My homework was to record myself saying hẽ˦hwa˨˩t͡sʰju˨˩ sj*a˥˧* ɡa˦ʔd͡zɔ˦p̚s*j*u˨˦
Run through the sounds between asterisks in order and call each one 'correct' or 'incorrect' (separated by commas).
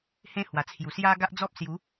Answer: incorrect, correct